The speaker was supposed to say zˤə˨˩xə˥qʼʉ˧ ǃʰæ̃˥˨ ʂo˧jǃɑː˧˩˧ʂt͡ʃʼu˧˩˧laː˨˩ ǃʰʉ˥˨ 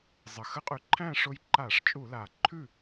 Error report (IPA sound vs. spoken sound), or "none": ɑː˧˩˧ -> aː˧˩˧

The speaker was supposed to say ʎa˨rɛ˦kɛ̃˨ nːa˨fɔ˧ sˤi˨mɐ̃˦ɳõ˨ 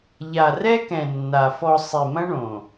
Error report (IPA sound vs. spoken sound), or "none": none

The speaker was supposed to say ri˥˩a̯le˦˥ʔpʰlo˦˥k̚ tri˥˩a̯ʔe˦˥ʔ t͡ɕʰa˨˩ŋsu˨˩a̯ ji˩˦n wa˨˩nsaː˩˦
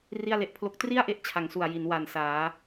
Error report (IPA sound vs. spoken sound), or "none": none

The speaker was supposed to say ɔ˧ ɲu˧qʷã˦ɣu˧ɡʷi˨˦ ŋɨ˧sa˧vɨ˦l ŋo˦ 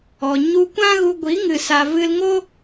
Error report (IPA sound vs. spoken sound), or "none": qʷ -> kʷ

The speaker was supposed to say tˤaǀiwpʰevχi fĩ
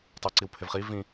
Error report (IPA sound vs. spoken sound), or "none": f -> v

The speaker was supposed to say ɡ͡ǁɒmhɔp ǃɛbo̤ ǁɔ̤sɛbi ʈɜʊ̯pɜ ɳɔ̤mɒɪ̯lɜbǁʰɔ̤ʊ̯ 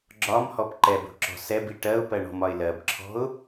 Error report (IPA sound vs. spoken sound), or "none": none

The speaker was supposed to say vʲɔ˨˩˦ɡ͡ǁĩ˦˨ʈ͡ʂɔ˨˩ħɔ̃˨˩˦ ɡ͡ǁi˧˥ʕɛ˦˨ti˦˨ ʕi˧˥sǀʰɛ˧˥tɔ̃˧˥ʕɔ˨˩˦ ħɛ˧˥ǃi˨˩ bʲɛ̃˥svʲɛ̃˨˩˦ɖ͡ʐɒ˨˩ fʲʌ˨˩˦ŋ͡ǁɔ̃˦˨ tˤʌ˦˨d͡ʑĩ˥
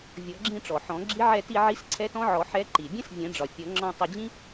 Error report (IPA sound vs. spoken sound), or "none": none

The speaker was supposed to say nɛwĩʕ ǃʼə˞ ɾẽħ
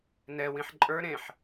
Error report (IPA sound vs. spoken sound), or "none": ʕ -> ħ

